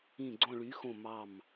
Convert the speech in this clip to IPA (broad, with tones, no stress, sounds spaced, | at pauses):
ĩ˧˩ ɡ͡ǀ õ˧˩ ɭ y˩˥ x õ˧˩ m ɑ˧˩ m